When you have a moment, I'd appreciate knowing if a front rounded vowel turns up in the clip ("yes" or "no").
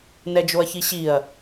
no